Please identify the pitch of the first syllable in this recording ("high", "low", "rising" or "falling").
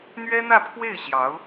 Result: high